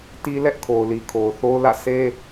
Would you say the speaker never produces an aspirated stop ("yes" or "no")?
no